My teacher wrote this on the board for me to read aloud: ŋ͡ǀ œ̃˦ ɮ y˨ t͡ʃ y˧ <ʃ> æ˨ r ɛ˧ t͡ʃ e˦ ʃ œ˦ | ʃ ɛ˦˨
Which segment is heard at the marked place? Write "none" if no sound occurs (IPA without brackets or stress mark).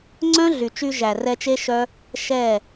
ʒ